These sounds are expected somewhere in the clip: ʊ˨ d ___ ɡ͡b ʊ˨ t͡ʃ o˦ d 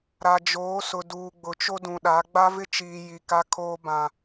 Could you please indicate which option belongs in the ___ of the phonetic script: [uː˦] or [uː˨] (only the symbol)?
uː˨